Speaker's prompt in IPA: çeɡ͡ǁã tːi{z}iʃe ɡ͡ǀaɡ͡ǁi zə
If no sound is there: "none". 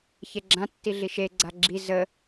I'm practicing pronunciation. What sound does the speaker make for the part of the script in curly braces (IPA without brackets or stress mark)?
ɮ